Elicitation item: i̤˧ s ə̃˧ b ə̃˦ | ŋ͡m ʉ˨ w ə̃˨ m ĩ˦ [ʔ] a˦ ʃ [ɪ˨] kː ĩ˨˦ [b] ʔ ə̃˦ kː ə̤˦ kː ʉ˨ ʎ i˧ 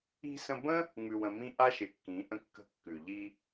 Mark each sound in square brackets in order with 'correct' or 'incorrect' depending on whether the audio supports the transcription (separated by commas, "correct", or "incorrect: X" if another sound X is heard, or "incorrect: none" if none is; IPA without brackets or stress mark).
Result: correct, correct, incorrect: none